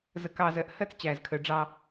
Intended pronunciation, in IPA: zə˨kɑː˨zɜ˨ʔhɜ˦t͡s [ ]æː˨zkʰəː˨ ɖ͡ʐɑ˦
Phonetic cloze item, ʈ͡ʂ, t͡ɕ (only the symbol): t͡ɕ